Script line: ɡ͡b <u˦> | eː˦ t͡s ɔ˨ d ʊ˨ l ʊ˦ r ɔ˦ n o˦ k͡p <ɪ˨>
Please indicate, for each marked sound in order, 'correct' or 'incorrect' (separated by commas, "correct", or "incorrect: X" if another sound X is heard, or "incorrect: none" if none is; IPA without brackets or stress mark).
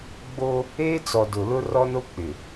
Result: incorrect: o˦, correct